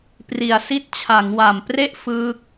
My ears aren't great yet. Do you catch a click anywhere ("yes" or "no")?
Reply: no